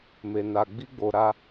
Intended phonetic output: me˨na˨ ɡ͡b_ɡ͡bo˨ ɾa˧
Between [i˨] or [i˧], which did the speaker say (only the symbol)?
i˧